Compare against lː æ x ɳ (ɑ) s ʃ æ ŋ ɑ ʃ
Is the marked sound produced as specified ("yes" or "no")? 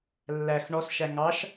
no